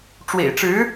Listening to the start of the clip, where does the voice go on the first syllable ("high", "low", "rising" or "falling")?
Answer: low